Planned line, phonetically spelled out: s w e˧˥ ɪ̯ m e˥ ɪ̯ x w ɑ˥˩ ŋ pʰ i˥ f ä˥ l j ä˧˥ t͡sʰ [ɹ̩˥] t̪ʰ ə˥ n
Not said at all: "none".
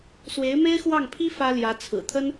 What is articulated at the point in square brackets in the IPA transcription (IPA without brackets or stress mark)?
ɹ̩˨˩